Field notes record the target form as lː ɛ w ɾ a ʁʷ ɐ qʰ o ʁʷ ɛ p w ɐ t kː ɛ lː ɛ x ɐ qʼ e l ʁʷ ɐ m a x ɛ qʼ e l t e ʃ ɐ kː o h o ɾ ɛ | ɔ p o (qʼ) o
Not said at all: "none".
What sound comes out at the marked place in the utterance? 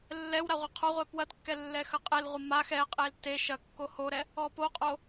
qʼ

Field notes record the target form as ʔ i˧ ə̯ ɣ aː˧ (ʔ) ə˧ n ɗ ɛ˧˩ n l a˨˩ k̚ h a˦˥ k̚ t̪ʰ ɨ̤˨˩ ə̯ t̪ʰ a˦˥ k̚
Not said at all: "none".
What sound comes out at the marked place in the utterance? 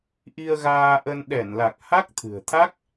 ʔ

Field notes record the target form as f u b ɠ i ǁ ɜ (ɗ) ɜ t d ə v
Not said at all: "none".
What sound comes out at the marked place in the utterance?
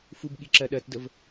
ɗ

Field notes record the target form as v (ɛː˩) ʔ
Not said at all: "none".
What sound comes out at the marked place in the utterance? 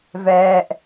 ɛː˧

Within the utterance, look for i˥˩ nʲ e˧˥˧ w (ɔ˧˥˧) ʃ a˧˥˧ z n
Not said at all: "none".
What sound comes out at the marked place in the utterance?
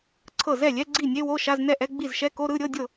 o˧˥˧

